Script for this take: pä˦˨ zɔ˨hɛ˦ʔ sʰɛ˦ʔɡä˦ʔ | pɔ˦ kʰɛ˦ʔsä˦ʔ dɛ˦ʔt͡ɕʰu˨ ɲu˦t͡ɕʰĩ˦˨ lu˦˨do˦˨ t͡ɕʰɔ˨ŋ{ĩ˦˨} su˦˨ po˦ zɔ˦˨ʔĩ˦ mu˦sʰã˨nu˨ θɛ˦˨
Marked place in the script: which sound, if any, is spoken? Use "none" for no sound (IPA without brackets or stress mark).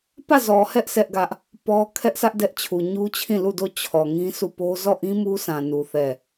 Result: ĩ˦